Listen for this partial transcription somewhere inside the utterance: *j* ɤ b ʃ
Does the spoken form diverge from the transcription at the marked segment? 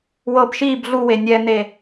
yes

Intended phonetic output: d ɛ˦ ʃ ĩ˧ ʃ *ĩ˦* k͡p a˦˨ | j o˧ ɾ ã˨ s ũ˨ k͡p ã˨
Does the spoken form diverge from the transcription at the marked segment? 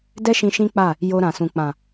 no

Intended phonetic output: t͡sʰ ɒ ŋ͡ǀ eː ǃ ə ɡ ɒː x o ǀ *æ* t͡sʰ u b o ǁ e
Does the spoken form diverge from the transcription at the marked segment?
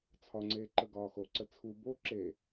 yes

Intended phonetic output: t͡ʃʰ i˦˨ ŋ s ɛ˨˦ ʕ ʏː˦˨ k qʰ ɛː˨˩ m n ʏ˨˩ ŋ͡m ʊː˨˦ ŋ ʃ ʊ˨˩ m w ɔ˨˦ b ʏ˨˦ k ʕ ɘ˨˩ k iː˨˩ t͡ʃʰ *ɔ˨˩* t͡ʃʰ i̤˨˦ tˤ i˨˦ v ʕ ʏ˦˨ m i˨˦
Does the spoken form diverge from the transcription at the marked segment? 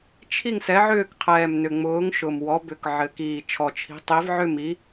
no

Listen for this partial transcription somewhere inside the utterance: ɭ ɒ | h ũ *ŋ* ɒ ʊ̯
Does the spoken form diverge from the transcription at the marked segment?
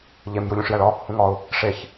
no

